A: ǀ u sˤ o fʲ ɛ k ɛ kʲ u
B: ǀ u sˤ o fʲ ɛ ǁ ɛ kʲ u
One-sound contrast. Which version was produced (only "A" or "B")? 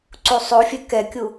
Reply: A